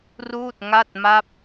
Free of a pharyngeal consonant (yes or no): yes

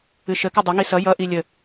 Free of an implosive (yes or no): yes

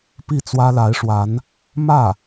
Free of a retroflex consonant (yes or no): no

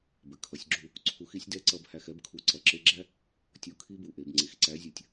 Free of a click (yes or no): no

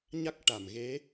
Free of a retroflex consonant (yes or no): no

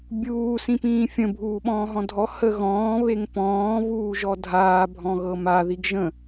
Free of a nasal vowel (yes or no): no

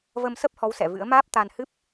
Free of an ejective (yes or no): yes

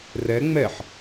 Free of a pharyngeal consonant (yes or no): no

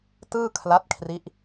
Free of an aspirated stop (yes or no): no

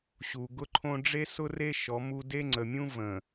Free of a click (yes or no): no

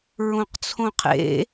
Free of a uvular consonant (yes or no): no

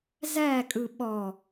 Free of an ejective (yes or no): no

